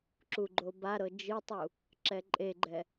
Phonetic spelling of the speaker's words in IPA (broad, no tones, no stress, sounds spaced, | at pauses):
ǁ u ɡ͡ǃ o b a ɾ ɤ d͡ʒ ɯ tˤ u | ǁ ɛ ǃʼ e ɡ͡ǃ ɛ